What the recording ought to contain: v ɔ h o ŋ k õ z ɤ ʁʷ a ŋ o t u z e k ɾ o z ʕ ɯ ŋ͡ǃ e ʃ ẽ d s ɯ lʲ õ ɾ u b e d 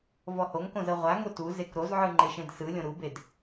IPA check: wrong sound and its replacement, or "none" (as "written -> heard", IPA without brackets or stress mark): none